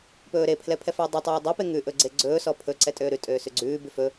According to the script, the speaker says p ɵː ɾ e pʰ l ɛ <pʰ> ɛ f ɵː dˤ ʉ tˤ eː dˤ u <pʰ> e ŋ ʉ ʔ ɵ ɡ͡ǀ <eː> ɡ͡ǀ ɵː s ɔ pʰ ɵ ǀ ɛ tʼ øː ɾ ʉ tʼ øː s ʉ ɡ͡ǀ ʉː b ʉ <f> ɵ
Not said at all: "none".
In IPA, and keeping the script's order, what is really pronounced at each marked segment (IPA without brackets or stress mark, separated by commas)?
pʰ, p, e, f